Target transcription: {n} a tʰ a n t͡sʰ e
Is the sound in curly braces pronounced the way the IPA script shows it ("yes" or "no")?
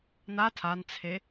yes